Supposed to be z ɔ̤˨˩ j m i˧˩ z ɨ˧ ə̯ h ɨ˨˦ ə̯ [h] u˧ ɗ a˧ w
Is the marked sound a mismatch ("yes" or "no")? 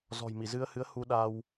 no